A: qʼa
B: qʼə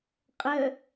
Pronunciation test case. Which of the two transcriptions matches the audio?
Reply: B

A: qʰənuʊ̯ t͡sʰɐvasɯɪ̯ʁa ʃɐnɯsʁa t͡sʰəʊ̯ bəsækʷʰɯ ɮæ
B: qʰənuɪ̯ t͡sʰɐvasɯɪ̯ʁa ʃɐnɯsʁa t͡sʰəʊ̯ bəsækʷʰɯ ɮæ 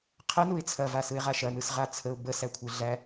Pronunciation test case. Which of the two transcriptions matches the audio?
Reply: B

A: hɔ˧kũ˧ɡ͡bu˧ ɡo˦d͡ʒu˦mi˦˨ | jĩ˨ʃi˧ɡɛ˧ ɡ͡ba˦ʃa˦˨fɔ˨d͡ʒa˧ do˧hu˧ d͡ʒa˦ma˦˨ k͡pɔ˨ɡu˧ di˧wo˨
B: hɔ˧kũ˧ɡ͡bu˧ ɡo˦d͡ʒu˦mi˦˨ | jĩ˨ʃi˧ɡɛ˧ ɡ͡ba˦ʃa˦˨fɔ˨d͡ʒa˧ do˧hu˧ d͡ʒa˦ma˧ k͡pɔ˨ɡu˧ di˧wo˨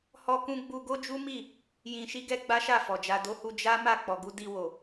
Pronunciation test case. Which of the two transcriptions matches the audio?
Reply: A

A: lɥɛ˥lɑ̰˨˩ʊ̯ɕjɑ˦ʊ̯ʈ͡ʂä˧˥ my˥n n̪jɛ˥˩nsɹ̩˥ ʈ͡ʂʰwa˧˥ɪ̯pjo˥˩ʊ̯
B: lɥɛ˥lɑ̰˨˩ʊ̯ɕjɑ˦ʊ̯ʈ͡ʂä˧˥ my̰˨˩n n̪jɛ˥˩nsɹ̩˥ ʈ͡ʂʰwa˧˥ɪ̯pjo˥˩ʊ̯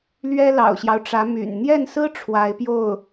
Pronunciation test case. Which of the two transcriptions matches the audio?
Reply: B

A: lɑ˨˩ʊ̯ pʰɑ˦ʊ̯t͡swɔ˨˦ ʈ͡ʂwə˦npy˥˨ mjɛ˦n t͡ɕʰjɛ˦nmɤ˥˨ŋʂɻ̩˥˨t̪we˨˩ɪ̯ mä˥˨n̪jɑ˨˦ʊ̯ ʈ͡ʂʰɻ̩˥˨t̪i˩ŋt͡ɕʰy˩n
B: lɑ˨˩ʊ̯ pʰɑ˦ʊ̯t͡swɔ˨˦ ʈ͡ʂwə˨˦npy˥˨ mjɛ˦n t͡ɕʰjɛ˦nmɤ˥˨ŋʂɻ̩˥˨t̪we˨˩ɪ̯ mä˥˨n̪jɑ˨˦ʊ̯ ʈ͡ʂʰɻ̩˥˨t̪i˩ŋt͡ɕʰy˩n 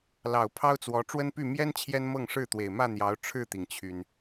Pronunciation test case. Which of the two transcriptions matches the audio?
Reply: A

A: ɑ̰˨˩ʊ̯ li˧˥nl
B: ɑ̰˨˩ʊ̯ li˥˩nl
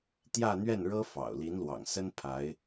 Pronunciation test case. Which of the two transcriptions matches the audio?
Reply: A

